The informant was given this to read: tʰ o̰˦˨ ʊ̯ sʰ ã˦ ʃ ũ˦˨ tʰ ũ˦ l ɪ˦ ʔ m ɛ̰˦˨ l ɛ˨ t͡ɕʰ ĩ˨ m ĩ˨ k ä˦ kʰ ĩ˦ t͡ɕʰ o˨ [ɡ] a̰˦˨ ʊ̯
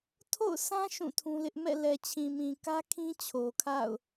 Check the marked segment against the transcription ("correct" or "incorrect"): incorrect